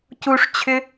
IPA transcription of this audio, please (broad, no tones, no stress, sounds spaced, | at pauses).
c u ʂ t͡ɕʰ ʏ